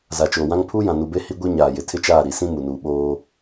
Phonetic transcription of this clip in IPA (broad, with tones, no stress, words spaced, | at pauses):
za˨t͡ʃoː˨wã˦ŋ pʰuː˦jã˨nu˨be˦ hi˦ɡʷi˦ ɲaː˨jɪ˨ tʰɪ˦t͡ʃaː˦˨ ɾi˨sĩ˦ mu˨nuː˨ ɓoː˦